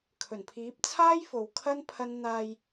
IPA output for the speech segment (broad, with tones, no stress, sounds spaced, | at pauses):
kʰ ɵ˨˩ n pʰ iː˨˥ p̚ t͡sʰ aː˥ j f o˨ w kʰ ɐ˥ n pʰ ɐ˥ n n̪ aː˧ j